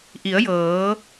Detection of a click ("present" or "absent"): absent